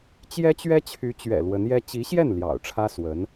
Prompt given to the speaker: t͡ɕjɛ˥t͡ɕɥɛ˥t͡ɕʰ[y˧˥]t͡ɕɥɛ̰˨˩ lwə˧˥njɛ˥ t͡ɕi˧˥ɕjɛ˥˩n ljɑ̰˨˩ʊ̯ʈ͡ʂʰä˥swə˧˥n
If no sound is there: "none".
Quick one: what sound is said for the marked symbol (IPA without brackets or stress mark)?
y˧˥